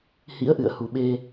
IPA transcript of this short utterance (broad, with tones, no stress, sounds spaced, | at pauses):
h ḭ˧˥ ə̯ ʔ ɨ̰˧˨ ə̯ h u˨˩ ɓ e˧